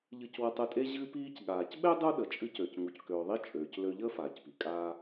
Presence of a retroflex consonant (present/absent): absent